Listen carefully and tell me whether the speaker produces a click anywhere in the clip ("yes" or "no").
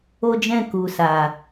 no